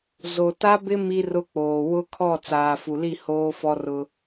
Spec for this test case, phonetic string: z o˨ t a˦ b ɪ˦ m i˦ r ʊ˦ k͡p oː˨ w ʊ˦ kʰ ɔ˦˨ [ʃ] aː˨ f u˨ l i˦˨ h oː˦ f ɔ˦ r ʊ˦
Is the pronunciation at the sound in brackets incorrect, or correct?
incorrect